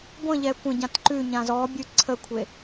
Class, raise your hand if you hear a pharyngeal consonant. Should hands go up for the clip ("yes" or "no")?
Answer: no